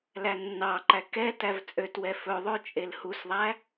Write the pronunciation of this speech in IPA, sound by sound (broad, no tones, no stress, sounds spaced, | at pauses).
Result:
l æ nː ɑ ǃ æ k ɛ t æ v t͡sʼ ø t w ɛ f ɵ ðˤ ø t͡ʃʼ e l h u s ðˤ æ